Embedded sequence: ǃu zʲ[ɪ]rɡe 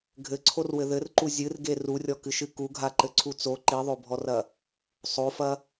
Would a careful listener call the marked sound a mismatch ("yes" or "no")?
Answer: yes